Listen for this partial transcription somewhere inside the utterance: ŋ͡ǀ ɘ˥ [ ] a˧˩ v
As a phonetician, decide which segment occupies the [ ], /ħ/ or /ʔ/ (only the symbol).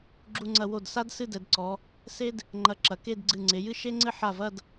ħ